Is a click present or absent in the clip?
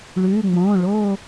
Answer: absent